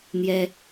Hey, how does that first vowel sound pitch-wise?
high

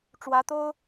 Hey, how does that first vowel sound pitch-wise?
rising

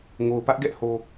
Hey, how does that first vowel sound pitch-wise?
low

